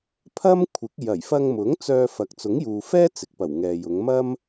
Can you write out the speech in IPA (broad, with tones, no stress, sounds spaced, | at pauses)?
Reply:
pʰ ɐ˥ m kʷʰ ɪ˨˥ k̚ j ɐ˨˩ j f ɐ˧ ŋ m ʊ˨˥ ŋ t͡s œː˧ f ɐ˨ k̚ t͡s ʊ˨˥ ŋ j uː˨ f ɛː˥ t͡s ɪ˨ k̚ p ɐ˨˩ w ŋ ɛː˨ j ʊ˨˧ ŋ m ɐ˥ m